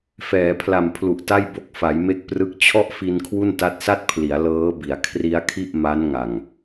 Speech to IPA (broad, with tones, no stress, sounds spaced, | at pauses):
f ɛː˩˦ pʰ l a˨˩ m pʰ l u˨˩ ʔ t a˥˩ j b o˦˥ k̚ f a˩˦ j m e˦˥ k̚ p r ɯ˦˥ k̚ t͡ɕʰ ɔ˥˩ ʔ f i˧ n kʰ w u˥˩ n t a˦˥ t̚ s a˥˩ t̚ pʰ l i˩˦ a̯ l ɤː˦˥ b i˩˦ a̯ kʰ r i˦˥ a̯ kʰ i˥˩ ʔ m a˦˥ n ŋ a˨˩ ŋ